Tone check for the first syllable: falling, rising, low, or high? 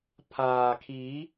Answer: low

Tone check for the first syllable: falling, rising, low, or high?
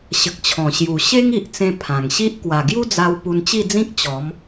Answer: low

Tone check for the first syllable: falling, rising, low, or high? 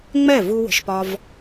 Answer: falling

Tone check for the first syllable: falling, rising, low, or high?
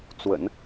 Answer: low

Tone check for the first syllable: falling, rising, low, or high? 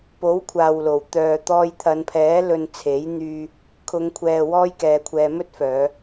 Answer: rising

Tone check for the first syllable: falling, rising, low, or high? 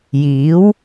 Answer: rising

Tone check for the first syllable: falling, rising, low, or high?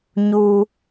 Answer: high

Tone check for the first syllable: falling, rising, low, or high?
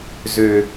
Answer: low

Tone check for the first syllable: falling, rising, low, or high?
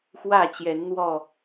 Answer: falling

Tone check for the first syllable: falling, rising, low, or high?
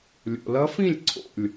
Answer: low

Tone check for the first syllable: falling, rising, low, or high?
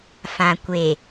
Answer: low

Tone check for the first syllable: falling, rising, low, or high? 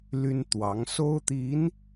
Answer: high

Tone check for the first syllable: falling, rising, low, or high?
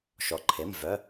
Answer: low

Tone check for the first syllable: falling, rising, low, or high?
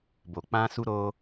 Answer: low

